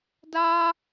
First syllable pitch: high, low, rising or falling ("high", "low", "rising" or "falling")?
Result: high